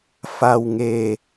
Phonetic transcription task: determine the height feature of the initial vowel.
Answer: low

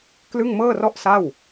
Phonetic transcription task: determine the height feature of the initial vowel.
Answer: high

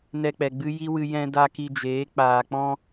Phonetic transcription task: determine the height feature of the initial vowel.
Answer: mid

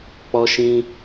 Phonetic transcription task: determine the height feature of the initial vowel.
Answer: mid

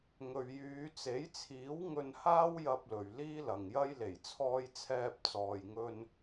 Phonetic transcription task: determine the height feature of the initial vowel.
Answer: mid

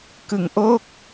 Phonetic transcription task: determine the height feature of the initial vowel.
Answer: high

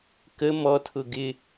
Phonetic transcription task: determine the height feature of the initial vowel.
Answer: mid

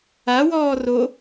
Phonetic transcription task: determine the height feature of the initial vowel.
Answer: low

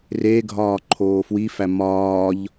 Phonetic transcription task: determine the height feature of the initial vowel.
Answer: mid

